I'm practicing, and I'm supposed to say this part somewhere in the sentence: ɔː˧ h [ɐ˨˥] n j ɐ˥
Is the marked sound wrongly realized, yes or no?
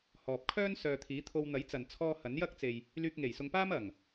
no